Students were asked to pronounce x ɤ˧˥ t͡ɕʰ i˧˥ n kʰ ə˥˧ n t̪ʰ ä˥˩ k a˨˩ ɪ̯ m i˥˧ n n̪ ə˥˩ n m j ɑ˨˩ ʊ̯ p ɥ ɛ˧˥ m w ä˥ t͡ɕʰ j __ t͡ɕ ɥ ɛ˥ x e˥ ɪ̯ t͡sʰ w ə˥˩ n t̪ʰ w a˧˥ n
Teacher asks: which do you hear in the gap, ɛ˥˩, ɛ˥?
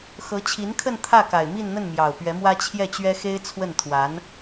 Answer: ɛ˥˩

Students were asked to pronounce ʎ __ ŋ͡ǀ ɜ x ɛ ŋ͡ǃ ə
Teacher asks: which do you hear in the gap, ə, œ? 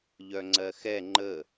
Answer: œ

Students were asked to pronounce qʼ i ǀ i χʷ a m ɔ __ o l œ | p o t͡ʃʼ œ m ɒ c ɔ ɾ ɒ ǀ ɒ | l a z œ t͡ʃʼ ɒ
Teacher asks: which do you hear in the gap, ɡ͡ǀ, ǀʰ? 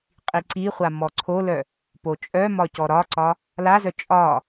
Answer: ǀʰ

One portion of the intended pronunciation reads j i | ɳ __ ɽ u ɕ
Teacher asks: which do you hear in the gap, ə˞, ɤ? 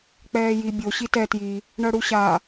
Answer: ɤ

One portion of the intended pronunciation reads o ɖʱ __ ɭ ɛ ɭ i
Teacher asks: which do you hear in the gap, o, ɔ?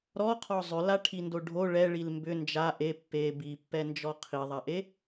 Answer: o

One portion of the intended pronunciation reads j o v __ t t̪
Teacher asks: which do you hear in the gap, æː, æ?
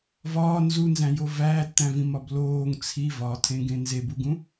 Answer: æː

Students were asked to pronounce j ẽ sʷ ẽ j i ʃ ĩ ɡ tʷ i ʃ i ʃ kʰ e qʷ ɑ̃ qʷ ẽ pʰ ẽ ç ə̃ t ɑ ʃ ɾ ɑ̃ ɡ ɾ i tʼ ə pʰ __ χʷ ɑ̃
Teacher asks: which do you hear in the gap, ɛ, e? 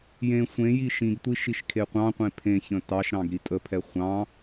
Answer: ɛ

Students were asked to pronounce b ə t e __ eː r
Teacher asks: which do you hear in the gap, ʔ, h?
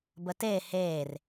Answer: h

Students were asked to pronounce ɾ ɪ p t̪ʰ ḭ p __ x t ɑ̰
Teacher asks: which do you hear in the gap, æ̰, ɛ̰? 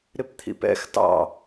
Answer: ɛ̰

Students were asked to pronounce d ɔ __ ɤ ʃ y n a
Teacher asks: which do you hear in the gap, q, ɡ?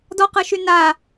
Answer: q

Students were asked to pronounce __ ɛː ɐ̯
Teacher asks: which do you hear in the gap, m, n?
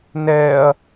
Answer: n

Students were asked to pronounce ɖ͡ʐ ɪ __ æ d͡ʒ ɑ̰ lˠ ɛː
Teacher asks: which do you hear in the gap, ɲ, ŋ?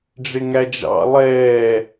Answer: ŋ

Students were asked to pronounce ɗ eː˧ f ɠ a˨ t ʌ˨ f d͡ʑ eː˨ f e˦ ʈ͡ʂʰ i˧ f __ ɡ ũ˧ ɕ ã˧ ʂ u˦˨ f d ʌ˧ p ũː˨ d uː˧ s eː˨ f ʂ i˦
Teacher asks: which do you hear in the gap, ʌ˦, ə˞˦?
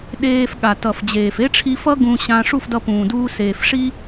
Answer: ʌ˦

